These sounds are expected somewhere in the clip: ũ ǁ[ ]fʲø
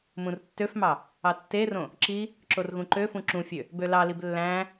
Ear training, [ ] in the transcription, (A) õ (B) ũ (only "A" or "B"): B